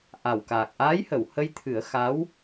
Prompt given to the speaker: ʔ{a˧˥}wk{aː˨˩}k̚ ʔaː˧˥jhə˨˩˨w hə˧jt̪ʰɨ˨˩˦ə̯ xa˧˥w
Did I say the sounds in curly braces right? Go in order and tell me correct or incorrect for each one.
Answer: incorrect: a˨˩, correct

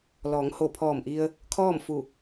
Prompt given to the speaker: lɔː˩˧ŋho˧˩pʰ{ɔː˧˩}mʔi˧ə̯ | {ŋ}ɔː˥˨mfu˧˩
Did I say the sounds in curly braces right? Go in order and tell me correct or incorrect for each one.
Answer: correct, incorrect: kʰ

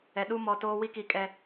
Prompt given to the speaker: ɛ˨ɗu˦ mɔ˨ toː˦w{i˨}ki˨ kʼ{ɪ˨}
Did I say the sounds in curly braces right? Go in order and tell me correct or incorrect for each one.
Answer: incorrect: i˦, incorrect: ɛ˨

